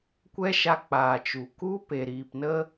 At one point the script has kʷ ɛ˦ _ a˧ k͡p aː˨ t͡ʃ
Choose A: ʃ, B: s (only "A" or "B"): A